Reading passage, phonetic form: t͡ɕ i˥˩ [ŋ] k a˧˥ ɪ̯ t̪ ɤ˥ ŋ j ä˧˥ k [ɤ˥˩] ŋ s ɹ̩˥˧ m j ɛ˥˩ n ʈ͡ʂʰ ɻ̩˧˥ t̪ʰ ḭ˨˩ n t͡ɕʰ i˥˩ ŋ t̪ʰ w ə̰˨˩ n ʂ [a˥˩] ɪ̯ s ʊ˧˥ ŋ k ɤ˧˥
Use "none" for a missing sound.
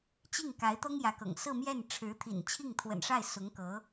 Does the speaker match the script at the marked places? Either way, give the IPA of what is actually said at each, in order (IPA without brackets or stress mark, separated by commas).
ŋ, ɤ̰˨˩, a˥˩